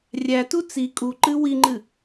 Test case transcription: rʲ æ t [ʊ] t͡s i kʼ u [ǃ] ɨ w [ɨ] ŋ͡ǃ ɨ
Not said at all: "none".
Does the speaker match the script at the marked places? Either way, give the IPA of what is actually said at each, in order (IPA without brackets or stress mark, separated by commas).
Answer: u, ǃ, i